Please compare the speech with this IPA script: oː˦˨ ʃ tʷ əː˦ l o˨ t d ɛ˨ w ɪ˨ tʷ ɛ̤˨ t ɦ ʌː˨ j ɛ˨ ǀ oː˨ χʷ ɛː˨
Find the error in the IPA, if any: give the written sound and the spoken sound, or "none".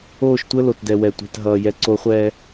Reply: ɪ˨ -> ɛ˨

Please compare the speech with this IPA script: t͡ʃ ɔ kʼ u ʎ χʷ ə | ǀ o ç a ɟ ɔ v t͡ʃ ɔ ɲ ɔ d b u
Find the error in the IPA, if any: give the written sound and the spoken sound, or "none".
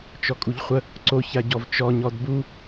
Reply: none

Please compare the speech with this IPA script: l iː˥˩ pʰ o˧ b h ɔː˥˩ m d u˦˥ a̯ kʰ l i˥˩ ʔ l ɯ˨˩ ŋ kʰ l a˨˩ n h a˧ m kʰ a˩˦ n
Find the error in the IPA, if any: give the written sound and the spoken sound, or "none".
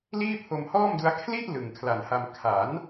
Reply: b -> m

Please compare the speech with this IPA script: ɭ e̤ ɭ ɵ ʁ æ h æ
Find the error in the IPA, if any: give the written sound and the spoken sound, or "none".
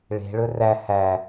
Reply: ʁ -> r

